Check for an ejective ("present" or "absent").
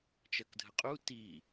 present